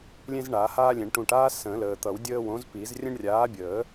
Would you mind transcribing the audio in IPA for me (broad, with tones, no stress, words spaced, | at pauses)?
lʲẽ˦zɳaː˨˩˦haː˦lʲẽ˨˩˦ɳ ʈũ˨ʈ aː˦ sə̃ː˨˩˦ləː˨t̪ʌ˨˩˦wdʲəː˦ wõ˨˥zpi˨˩˦z rʲə̃˦ɳrʲaː˨˥bʲəː˨˩˦